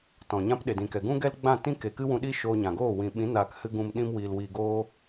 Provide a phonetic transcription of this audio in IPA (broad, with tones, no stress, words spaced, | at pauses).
tɔ̃˨ɲã˦p ɗe˨dĩ˨kɛ˨ ɡũ˦ ɡɛ˦lɡ͡bã˦˨ tĩ˦ke˨kɨ˦wũ˧ ɗi˦ ʃoː˧ɲã˨ ɡoː˦˨ wĩ˨ɓĩ˨˦ naː˧khɨ˦ɡũ˧m ɗĩ˧mwiː˨lwiː˨ɡoː˧